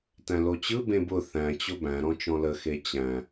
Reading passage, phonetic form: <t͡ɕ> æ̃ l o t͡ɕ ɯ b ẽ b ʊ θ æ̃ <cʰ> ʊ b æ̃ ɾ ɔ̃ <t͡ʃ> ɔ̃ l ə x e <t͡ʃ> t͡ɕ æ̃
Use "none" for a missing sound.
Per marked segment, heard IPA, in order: t, t͡ɕ, t͡ʃ, none

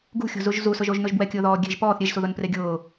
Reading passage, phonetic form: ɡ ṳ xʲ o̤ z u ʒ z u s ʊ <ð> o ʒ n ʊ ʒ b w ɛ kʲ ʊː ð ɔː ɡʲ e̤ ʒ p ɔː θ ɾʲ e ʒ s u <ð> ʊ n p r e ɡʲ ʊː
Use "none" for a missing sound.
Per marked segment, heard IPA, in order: ʒ, ð

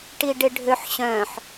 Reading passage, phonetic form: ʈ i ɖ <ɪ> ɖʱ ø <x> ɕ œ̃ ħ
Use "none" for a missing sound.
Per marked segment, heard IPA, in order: ɪ, ħ

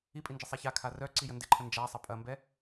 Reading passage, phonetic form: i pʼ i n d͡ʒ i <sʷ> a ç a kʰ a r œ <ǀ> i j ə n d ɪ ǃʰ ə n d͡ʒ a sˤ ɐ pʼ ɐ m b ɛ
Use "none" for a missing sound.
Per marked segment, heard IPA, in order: sˤ, ǀ

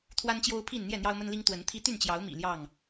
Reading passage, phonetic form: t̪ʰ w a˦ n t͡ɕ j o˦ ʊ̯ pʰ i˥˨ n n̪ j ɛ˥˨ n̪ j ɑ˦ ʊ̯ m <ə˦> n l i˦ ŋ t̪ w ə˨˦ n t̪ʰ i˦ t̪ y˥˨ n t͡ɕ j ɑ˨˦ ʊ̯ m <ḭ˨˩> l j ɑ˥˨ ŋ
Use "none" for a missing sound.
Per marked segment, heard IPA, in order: ə˦, ḭ˨˩

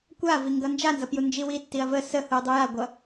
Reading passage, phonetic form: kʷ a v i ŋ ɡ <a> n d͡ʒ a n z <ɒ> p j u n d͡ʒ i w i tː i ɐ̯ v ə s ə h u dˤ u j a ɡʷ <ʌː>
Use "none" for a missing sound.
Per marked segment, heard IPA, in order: ʌ, ʌ, ʌ

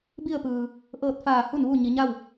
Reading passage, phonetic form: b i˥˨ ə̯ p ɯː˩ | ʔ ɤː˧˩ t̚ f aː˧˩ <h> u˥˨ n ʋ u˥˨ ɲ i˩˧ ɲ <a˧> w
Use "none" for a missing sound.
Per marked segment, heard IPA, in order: h, a˥˨

